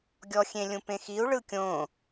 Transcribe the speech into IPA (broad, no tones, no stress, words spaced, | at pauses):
ɡʲɔxʲẽ lʲũpẽxiu̯ ɭɯkʲõ